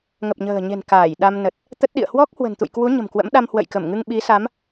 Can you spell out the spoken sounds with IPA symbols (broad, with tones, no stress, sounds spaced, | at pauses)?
ŋ ə˨˩ p̚ ɲ ə̤ː˨˩ ɲ e̤˨˩ n k aː˧˩ j ɗ a˧ m n ə˨˩ t̚ | t̪ ə˦˥ t̚ ɗ ḭ˧˨ ə̯ h w ɔ˦˥ k̚ h w ə̤˨˩ n t̪ ṵ˧˨ j k w u˨˦ ɲ ə̤˨˩ m k w ə̰˧˥ m ɗ a˧ m h w ə̰˧˨ j k ə˧˩ m ŋ ɨ˧ ŋ ɓ i˨˦ s a˨˦ m